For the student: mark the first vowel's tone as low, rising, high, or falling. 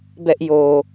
high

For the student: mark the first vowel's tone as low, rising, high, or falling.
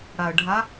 low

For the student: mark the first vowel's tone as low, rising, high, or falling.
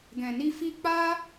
low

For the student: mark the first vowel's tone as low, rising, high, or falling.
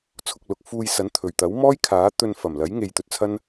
low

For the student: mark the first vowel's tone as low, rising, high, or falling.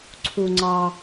low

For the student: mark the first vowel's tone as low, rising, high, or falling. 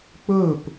falling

